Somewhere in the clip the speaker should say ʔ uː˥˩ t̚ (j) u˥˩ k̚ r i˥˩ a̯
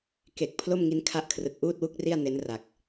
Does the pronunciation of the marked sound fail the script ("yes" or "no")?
yes